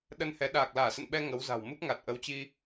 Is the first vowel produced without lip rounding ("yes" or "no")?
yes